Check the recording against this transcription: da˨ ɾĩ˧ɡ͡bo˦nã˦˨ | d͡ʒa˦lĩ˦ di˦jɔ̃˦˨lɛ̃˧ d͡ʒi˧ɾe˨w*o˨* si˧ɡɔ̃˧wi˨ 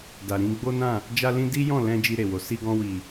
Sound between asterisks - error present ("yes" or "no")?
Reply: no